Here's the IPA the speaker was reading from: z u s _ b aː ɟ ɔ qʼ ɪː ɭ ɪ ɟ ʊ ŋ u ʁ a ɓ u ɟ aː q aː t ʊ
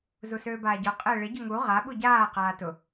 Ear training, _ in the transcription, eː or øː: øː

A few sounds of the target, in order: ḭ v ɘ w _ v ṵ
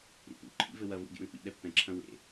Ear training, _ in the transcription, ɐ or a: ɐ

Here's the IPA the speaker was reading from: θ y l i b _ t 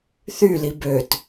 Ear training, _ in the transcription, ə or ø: ø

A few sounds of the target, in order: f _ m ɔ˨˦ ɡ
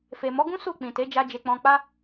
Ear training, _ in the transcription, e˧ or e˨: e˨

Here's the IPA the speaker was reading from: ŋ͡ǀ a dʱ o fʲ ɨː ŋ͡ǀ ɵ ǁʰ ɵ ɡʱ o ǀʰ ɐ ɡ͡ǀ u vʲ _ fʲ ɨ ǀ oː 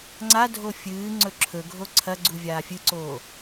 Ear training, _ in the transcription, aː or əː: aː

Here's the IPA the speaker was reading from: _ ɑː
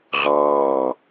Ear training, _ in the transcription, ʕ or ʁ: ʁ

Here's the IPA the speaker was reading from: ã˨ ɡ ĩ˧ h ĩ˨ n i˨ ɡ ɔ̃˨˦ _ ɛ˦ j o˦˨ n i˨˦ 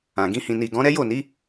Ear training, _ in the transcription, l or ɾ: ɾ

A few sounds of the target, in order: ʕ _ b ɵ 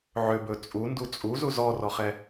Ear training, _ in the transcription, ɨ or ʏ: ʏ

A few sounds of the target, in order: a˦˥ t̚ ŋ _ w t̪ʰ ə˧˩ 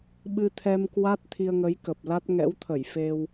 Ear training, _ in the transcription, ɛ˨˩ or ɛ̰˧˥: ɛ̰˧˥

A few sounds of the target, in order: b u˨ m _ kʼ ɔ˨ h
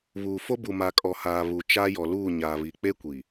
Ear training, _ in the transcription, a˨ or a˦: a˨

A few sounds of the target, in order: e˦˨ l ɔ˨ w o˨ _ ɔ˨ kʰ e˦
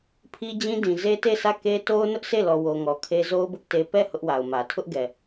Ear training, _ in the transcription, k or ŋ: ŋ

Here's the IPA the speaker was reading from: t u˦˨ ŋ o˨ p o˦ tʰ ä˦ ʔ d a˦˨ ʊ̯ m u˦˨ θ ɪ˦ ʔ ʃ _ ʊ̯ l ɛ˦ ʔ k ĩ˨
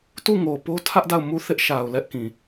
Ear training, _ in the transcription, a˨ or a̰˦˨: a˨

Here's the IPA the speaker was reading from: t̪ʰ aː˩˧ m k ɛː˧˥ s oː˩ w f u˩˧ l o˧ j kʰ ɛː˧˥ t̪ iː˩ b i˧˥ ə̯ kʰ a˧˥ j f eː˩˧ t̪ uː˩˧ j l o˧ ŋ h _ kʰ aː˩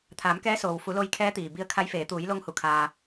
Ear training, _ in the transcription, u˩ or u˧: u˩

